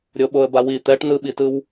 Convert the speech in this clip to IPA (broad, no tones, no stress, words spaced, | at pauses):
ɾʲoɓoə̯bawi t̪ɛʈ nɯɓitɯw